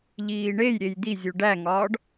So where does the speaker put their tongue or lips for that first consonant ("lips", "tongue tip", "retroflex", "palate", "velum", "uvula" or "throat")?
palate